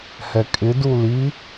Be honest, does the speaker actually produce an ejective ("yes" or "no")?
yes